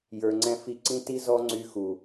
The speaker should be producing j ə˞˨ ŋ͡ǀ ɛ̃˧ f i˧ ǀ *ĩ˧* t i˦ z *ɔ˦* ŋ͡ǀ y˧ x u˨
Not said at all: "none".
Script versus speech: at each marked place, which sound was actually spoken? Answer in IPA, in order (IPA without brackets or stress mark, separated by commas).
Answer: ĩ˦, ɔ˦